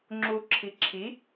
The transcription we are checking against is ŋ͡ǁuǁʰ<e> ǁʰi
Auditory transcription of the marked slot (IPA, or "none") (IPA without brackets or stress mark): i